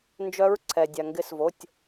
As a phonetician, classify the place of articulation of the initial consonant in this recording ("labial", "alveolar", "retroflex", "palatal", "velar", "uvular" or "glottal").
alveolar